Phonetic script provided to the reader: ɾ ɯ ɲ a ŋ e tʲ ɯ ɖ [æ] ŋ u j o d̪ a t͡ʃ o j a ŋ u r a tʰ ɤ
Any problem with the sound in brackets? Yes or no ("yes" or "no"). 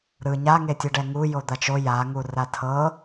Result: yes